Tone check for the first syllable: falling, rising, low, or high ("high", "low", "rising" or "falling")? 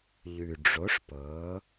low